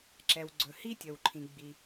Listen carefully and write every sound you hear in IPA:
ǁ ɛ˩ w ɡ͡ǀ ɵ˩ h i˦ tʲ ə˩ w ǃʰ ĩ˩ ɡ͡b i˩

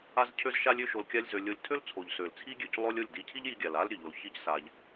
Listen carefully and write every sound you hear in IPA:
a˧ z cʰ ø˧ z ʃ a˧ lʲ ø˦ ʃ o˧ l kʲ a˦ lʲ z ø˧ lʲ o˧ lʲ tʰ ø˦ l t͡sʰ o˨ ʎ s ø˨ l t͡sʰ i˦ ɡʲ ø˨ c lˠ o˦ lʲ o˦˨ lʲ d i˧ cʰ i˦ ʎ j i˧ ɡʲ a˨ l a˦ l ɾʲ ø˨ ʎ o˨˦ l ç i˦ c s a˧ ʎ

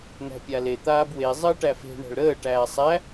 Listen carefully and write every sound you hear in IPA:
n̪ æ̤ pʲ a l e t̪ aː b w e zˤ əː ʈ æ f e̤ ɳ æ̤ ɭ ɾ əː ʈ æː sˤ æ

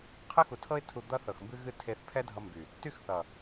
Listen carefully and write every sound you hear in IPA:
qʰ ɨ˦ x u˨ tʰ ɤ˦ ɪ̯ tʰ u˧ d̪ ʌ˦ θ ɤ˨ x m b ɨ˦ ɣ ɨ˦ tʰ e˧ θ pʰ ɛ˦ dʱ ʌ˧ m b y˨ | t y˦ x θ ʌ˨

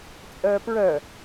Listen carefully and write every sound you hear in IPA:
t͡sʼ œː p ɹ œ

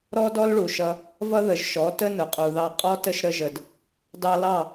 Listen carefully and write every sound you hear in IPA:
ɾ ɔ˦ d ɔ˦ l ɭ u˨ ʃ ʌ˧ | v ʌ˦ ð ə˨ ʒ ʃ ɔ˨˦ t ə˦ n ʊ˨ qʼ u˨ ð ɑ˧ qʼ ɔ˦ t ə˦ ʃ ɾ ə˦ ʒ ə˧ d | d ɑ˧ l ɑ˦˨

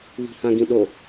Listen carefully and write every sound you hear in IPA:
β i̤ h ã ɡ ĩ ɗ o

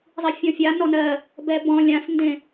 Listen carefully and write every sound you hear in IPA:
zˤ i fʲ ɔ̃ fʲ a n ɔ n ɜ | b ɛ b ɔ̃ lʲ ã s n d ẽ

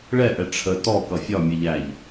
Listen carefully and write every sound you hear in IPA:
ɭ ɛ ʔ ɛ ʈ͡ʂʰ ə t ɔ k ʌ fʲ ɒ mʲ ɛ ʎ æ ʎ

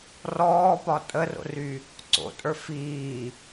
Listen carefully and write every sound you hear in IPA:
r ɔː p ɒ tʼ ə r o̰ r y | ǀ o̰ tʼ ə˞ f iː

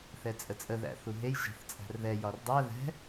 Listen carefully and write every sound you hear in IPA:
θ ɛ t͡sʼ ə t͡sʼ ə ð æ̰ θ u ɦ e j ʒ æ̤ θ t͡sʼ æ̤ r ð ɛ j ɒ r dˤ æ ð ɛ̤

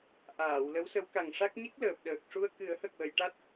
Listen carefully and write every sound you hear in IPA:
ʔ aː˨˩˨ w l ə˧˥ w s ə˧˥ w k a˨˩ ŋ ʂ a˦˥ k̚ ɲ i˦˥ k̚ l əː˨˩ p̚ ɗ əː˨˩ k̚ ʂ u˧ ə̯ k ɨ˨˩˦ ə̯ h ə˨˩ k̚ w ə˨˩˨ j ʈ a˦˥ t̚

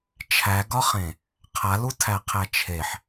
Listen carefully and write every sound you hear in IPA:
t͡ʃʰ æ ɡ ɒ χ ẽ | qʰ a l u tʰ æ qʰ æ t͡ʃʰ e ħ

